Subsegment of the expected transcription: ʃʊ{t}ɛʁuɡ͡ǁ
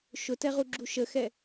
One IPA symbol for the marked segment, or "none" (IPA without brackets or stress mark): t